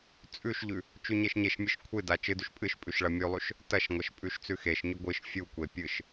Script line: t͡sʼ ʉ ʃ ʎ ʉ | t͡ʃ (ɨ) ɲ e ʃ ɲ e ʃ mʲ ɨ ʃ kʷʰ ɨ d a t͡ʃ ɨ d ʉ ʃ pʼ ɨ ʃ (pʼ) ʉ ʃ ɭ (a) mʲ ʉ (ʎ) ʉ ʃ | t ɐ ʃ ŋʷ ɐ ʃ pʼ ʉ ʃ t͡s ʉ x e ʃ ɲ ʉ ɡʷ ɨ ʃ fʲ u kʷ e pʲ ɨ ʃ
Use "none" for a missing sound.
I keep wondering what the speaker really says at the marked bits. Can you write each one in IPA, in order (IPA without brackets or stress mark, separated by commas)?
ʉ, pʼ, ɐ, lˠ